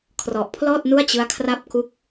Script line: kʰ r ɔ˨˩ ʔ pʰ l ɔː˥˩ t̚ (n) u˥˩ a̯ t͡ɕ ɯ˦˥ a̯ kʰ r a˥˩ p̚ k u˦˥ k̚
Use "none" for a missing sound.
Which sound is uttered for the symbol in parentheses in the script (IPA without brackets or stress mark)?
n